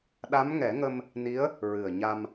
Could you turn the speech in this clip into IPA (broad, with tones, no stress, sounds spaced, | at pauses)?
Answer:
ɗ a˧˥ m ŋ ɛ˨˩˦ ŋ ə˧ m | n i˧˥ ə̯ | ɹ ɨ˨˩ ə̯ ɲ a˧ m